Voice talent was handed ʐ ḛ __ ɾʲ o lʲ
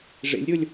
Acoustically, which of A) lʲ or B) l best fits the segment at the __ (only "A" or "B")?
A